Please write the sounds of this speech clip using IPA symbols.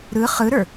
ɾ ɯ χ ɯ ɾ ə˞

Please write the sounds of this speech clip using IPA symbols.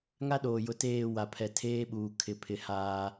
ŋ a˦ ɗ oː˨ j ʊ˨ t eː˦˨ w a˨ pʰ ɛ˨ tʰ eː˦ ɓ uː˨ kʰ ɪ˨ pʰ ɪ˨ h aː˦

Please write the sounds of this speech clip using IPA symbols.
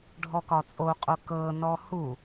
ɖʱ ɔ k ɒ t͡sʼ o qʼ o k ɤ n ɔ h u

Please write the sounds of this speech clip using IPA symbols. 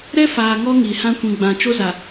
ɾ ɛ˦ f aː˨ ŋ ɔ˦ ŋ i˨ h ã˦ kʷ ĩ˨ ɡ͡b ã˨ t͡ʃ o˦ z a˨

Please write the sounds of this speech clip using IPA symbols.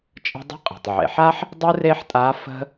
t͡ʃʼ ə̤˧ dˤ ə̤˧˥ qʼ e̤˩ tˤ ʕ ḛ˩˧ ħ a˥ ħ | dˤ ɯ˥ r e˥ ħ tʼ a˧˥ f ə̤˥

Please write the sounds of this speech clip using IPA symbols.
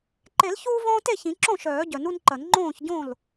ǃ e˨˩˦ l ç uː˧ v õː˧ t e˥˩ ç ĩ˨˩˦ ǁ õ˥˩ ʃ œː˨˩˦ ɟ œ˨˩˦ n u˧ n ǃ ɐ˨˩˦ n ŋ͡ǃ õː˥˩ ç ɟ õ˥˩ l

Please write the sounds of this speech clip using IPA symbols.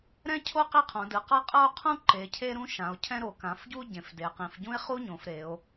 ɾ ɛ̃˥ cʰ o˥ q i˥ qʰ õ˩˧ d ɯ˩˧ q ɤ˥ qʼ ɤ˥ o̯ qʰ ũ˥ ǃ e˩˧ cʰ e˥ ɾ ũ˥ ʃ ã˩˧ o̯ cʰ ɛ̃˥ ɾ o˩˧ k ã˩˧ f ɟ u˥ ɟ ẽ˩˧ f d e˩˧ q ĩ˩˧ f ɟ ũ˥ e̯ χ u˥ ɲ õ˩˧ f ɾ e˩˧ o̯

